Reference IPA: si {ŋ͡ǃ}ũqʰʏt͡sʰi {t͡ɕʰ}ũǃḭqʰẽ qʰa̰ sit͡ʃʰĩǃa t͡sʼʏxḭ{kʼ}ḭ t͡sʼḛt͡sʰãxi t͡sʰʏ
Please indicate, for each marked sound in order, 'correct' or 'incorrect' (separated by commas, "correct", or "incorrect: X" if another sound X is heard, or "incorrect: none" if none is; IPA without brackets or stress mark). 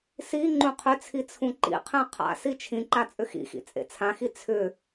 correct, incorrect: t͡sʰ, incorrect: x